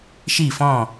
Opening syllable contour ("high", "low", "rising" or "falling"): falling